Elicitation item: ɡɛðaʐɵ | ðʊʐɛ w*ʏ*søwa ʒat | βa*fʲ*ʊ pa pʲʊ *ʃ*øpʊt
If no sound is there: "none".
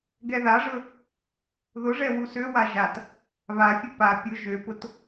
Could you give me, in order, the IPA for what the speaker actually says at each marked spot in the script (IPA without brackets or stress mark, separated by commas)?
u, fʲ, ʒ